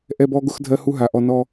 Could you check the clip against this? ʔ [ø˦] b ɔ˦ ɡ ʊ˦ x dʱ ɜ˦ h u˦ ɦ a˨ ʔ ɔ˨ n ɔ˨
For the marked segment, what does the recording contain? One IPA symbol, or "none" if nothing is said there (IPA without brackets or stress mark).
ɛ˦